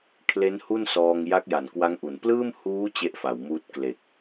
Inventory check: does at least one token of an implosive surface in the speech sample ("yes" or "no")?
no